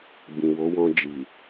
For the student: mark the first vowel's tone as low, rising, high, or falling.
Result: low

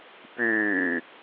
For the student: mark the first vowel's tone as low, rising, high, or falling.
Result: low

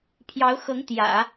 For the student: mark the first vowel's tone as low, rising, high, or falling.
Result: rising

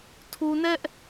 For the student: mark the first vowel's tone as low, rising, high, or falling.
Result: low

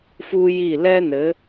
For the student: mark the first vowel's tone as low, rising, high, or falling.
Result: high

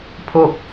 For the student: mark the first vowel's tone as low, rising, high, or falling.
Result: falling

